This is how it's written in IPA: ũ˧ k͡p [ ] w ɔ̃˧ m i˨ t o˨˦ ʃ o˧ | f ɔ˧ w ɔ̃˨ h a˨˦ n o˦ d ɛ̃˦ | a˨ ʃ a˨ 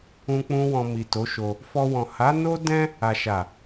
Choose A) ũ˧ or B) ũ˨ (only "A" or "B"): A